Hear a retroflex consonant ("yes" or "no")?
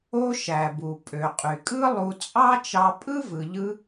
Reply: no